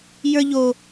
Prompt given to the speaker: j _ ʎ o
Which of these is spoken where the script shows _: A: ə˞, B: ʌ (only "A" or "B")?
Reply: A